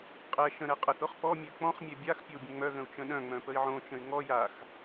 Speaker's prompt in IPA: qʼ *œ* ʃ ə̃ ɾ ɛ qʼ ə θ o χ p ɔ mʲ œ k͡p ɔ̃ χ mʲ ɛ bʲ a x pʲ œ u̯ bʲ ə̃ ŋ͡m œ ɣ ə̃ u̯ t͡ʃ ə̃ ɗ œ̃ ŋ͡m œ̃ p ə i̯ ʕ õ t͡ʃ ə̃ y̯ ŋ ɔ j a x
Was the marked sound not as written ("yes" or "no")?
yes